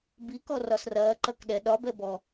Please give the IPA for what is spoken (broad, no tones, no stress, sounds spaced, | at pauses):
b i k ɔ r ɒ s r ɐː ǃ ɐ k ɗ ɛ ɗ ɒ b ɛ b ɔ